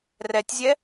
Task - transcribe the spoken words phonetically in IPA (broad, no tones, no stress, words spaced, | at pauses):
rɛtʲzʲɛ